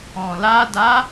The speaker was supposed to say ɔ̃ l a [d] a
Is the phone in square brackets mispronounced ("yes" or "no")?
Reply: no